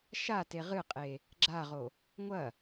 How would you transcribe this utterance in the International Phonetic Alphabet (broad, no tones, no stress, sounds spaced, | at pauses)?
ʃ a t e ʁ ɨ qʼ e | ɡ͡ǁ a ʁ o | ŋʷ ɐ